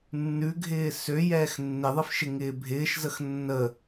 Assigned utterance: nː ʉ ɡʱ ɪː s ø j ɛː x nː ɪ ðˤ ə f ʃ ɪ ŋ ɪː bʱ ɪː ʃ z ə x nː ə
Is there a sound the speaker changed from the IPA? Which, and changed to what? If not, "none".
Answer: none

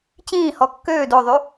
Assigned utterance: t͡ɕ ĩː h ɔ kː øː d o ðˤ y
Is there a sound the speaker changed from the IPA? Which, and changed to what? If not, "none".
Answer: none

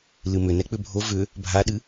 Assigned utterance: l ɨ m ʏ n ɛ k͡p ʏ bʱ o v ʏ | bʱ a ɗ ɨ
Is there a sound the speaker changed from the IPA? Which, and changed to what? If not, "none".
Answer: none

